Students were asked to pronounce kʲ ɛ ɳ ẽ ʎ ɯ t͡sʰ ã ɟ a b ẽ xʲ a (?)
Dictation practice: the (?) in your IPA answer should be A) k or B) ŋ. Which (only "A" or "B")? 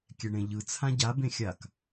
A